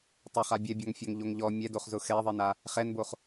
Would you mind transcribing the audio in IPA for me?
tˤ ʊ χ a bʲ ɛ bʲ ɔ ŋ fʲ ɔ ŋ ʎ o ŋ ʎ ɔ mʲ ɛ d o χ z ʊ x ɛ ðˤ i n a | χ ɛ n b o χ

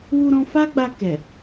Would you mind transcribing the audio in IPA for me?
w u˧ ɾ ɔ̃˧ f a˦ ɡ͡b a˧ k ɛ˨

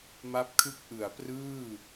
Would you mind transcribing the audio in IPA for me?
m a˦˥ p̚ kʰ ɯ˦˥ k̚ ʔ ɯ˩˦ a̯ p r ɯː˥˩

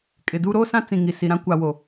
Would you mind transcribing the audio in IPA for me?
kʼ ɪ˨ d u˦ ɾ oː˦ s ã˦ t͡s ĩ˨ ŋ i˨ s i˨ ɾ ã˦ kʷ a˨ w o˨

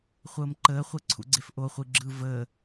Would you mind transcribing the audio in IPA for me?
χʷ əː m ǃ əː χʷ e ǀʰ ṵ ɡ͡ǀ e f ʔ o χʷ i ɡ͡ǁ ɯ v əː

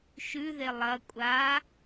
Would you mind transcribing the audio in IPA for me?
ʃ ʉ ð e lˠ ɐ kʷʼ a

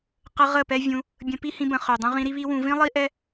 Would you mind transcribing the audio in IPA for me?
q ə˧ ʁ ə˦˨ p ɛ˦ vʲ ũ˧ | bʲ ə̃˧ p i˦ h ĩ˧ b ə̃˨ χ ø˨ dˤ ũ˧ ʁ ĩ˧ ɾ i˦ β i˦ w ũ˧ v ĩ˦ lˠ i˦ ʔ ɛ˦

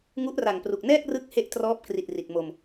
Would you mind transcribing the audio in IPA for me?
ŋ u˦˥ ʔ r a˨˩ ŋ p r u˨˩ k̚ n ɛː˥˩ k̚ r ɯ˦˥ k̚ h e˦˥ ʔ t r ɔː˦˥ p̚ k r i˨˩ t̚ r i˨˩ t̚ m o˧ m

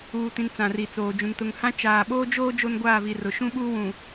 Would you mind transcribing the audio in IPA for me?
uː˨ t ĩ˨ n t͡s ã˨ r i˨ t͡s oː˨ d͡ʒ ũ˨ n t ʊ˨ ŋ h ã˦ t͡ʃ aː˨ ɓ oː˦ d͡ʒ oː˦ d͡ʒ o˦ n ɡʷ aː˦˨ v i˨ r ʊ˨ ʃ ũ˦ ɓ uː˦ w ũ˨

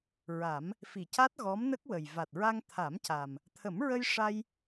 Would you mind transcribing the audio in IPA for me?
ɹ a˨˩˦ m | f i˨˩˨ c a˦˥ t̚ ɣ ɔ˧˥ m n ə˦˥ k̚ w ə˨˩ j v a˨˩ t̚ ɹ a˧ ŋ t̪ʰ a˨˩˦ m c a˨˩ m | t̪ʰ ə˨˩˦ m ɹ ə˧ j ʂ a˧ j

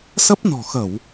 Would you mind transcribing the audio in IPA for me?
s ə˦˥ p̚ n ɔ̤˨˩ x ə˧˩˨ w

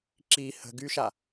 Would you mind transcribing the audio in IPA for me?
ǁ i h ə̤ ɡ y ʃ a

